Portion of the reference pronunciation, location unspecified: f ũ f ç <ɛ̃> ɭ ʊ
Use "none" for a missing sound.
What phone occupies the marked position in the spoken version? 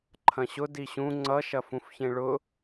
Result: ẽ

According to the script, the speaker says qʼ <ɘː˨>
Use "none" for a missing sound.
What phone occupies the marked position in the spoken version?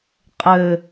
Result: ɘ˨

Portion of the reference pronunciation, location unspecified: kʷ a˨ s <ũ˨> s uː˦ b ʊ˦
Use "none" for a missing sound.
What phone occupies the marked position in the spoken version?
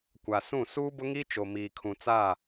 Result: ũ˦˨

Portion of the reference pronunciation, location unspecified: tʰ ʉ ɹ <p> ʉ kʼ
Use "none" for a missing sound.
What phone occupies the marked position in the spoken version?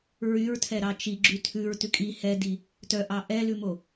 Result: t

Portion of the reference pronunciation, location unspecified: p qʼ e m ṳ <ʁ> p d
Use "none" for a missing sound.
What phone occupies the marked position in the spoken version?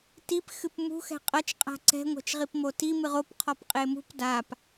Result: none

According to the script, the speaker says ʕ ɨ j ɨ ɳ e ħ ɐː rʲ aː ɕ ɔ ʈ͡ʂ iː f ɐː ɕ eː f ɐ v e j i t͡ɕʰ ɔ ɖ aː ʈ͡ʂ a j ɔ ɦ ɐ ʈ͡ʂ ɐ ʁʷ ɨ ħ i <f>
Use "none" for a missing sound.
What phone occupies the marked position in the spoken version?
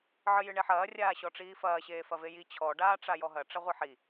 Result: none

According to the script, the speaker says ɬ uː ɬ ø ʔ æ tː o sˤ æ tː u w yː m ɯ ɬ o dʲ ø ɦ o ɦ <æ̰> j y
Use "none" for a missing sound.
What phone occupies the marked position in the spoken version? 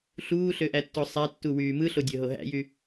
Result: æ̰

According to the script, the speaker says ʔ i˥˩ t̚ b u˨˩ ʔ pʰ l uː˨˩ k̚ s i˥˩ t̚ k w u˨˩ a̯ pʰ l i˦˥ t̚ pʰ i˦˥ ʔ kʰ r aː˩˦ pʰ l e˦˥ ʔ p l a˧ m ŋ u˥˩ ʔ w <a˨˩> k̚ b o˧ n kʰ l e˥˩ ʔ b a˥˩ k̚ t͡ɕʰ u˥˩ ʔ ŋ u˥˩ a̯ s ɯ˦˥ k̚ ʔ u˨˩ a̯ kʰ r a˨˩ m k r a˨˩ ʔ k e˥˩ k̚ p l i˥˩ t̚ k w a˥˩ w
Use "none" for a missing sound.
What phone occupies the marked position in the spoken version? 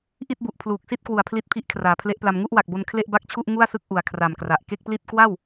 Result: a˨˩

